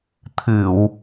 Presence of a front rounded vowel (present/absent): absent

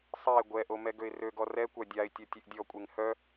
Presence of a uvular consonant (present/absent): absent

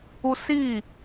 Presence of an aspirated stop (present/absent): absent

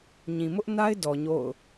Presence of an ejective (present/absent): absent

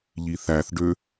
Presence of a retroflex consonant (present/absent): present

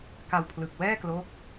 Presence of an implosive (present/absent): absent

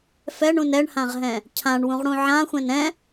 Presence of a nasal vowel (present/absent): present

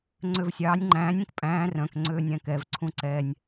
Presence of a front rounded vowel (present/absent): present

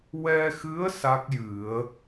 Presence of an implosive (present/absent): absent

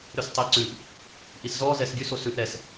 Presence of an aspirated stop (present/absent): absent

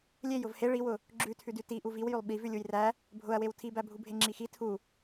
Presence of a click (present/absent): present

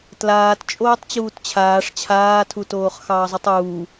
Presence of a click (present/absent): absent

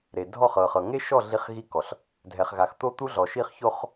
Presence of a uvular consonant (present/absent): present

